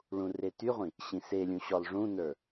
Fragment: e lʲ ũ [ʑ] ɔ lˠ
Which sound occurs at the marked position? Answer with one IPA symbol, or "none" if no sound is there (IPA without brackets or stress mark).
ɕ